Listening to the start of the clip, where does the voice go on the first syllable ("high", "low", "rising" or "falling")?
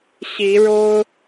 rising